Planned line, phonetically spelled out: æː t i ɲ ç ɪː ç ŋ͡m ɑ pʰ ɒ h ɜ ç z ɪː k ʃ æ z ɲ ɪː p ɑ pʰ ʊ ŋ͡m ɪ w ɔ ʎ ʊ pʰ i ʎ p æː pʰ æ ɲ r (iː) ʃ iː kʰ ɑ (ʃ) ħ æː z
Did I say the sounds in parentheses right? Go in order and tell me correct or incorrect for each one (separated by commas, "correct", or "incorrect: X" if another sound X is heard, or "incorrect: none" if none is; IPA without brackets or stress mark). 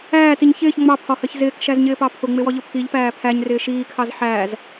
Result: incorrect: ɪː, incorrect: z